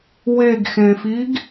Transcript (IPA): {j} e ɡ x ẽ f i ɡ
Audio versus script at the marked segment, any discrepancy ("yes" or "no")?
yes